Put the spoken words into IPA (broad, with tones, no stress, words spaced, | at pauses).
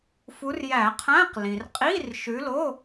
fu˨˦rjæ˧˩˧qʰæ̃˧˥˧q lĩ˩rqʼi˧˥˧rʃʉ˨˦lo˧˥˧